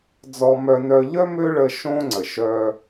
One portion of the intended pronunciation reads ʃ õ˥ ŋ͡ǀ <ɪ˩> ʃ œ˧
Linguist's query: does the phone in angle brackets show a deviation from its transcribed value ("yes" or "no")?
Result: yes